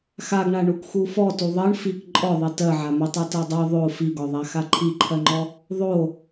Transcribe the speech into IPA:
x a ɡ ɳ a ɳ u k x u f ɔ t u ðˤ ɜ ɳ f i k ǃʼ ɔ ðˤ i t ɜ ʕ a m e tˤ i t ɜ dˤ ɜ ðˤ o f i ɡ ɔ ðˤ a x a ǃʰ i ǃʰ ɜ ŋ͡ǃ ɔ | ðˤ o

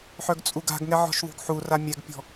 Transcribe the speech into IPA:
ħ œ ɡ t͡sʼ u ɡ a̤ ɡ ŋ ɛ ʕ ɔ̤ ʃ ðˤ ṳ ɡ ħ u r a mʲ ɛ ɡ pʲ ɔ̤

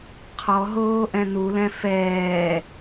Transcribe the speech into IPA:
qʰ ɔ ɦ oː ʔ ɛ̃ n u l ɛ̃ f ɛː

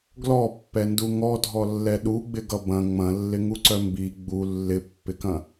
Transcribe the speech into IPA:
ɡ l ɔ pː ɛ n d u ŋ ɔ dʱ ɔ lː ɛ ɗ u ɡ͡b ɪ ɡ ʌ b ɐ̃ ŋ͡m ɐ̃ lː ɪ ŋ u ǀ œ m b i ɡ͡b u lː ɪ pː ɪ k ɐ̃

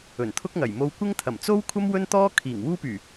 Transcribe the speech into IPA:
ɵ˨˩ n t̪ʰ ʊ˥ k̚ ŋ ɐ˨˩ j m o˧ w kʷ ɪ˥ ŋ t̪ʰ ɐ˨˩ m t͡s o˥ w kʷʰ ɐ˥ m w ɵ˥ n t̪ ɔː˥ kʰ iː˨˩ ŋ w uː˥ p yː˨˩

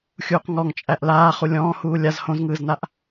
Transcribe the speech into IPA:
xʲ uː q ŋ ɔ ŋ t͡ʃʼ æ ʔ l aː χ u lʲ ɔ̃ː h uː lʲ a z h õ z ŋ ɯː z n a ʔ

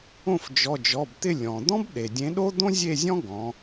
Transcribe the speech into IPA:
õ˥˨ f d͡ʒ ɔ˩˧˩ d͡ʒ ɔ˩˧˩ b t̪ ɪ˥˨ lʲ ɔ̃˩ d̪ ɔ̃˥ b ɗ e˩ dʲ ẽ˨˥ ɗ o˥ d̪ õ˥ zʲ e˥˨ zʲ ɔ̃˥ ɡ ɔ̃˩˧

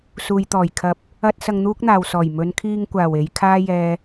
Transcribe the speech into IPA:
s uː˨ j t̪ ɔː˨˩ j kʰ ɐ˨˥ p̚ | ɐ˥ t̚ s ɐ˧ ŋ n̪ uː˥ k̚ n̪ aː˨ w s ɔː˨˩ j m ɵ˨˧ n kʰ iː˧ ŋ kʷ aː˨˩ w e˨˧ j kʰ aː˥ j ɛː˧

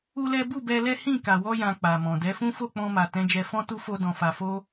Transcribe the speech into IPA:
u˦ l ɛ˦ b u˦˨ b ɛ˧ l ɛ˦ h ĩ˦˨ k a˨ w ɔ˧ j ã˨ k͡p a˨ m ɔ̃˨ d ɛ˨˦ f ũ˦ f o˦˨ k͡p ɔ̃˧ m a˨ t ɛ̃˨˦ d͡ʒ ɛ˧ f ɔ̃˦ t u˦ f o˦ d ɔ̃˧ f a˧ f o˦

